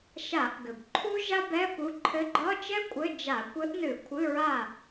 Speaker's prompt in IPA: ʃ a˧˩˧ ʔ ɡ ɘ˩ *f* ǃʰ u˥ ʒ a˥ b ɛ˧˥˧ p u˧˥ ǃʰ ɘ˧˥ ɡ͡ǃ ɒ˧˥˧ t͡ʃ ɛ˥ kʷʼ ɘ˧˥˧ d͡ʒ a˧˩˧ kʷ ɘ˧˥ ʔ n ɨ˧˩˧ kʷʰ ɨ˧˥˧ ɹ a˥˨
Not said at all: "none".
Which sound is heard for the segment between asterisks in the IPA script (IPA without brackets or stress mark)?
b